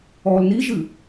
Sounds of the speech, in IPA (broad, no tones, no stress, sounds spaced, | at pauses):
ɔː l n i ʒ ɨ